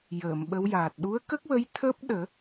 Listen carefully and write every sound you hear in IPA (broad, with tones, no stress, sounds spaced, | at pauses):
j əː˨˩˨ m ɓ ə˧˥ w j aː˨˩ t̚ ɗ u˧˥ ə̯ k ə˦˥ k̚ w ə˧˥ j t̪ʰ əː˦˥ p̚ ɗ əː˨˩˦